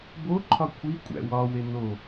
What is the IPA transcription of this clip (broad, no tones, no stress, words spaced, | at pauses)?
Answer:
boǃʰɒ kʷʰikʷʼæ̰ wɒwe no